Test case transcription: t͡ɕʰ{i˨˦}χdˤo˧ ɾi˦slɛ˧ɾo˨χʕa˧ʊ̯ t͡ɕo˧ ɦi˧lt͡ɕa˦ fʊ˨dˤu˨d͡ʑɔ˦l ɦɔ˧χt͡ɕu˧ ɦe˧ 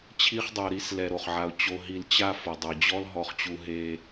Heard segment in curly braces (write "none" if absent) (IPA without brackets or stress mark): i˦